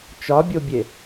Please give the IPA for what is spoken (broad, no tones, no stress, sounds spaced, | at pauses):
t͡ʃ ɒ bʲ o bʲ e